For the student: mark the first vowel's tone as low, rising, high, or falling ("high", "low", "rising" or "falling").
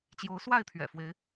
rising